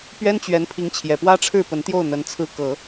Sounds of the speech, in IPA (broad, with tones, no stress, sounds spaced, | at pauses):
p ɥ ɛ˥ n t͡ɕ ɥ ɛ˧˥ n pʰ i˧˥ ŋ t͡ɕʰ j ɛ˨˩ p w ä˥ ʈ͡ʂʰ ɻ̩˥˩ p ə˧˥ n t̪ j o˥˩ ʊ̯ n̪ ə˧˥ n t͡sʰ ɹ̩˥ k ɤ˨˩˦